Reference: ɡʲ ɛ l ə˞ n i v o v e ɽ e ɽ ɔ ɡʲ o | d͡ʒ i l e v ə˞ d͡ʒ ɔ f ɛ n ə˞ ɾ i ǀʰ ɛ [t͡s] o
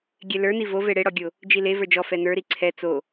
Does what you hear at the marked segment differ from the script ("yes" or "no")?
no